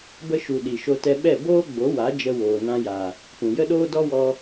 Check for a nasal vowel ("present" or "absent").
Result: present